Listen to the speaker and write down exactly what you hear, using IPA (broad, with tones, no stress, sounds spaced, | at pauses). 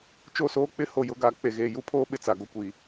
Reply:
t͡ʃ o˦˨ s oː˦ k͡p ɪ˦ h o˨ j ʊ˨˦ ɡ aː˨ k͡p e˨ ɣ eː˨ j u˦ pʰ oː˦ ɓ ɪ˨ t͡s a˨ ɡ o˦ kʷ iː˨